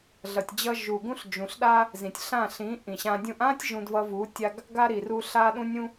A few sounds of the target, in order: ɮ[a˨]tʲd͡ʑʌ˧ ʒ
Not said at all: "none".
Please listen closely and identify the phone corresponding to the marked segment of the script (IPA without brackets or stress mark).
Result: ʌ˨